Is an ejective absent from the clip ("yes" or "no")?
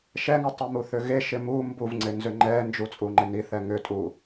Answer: no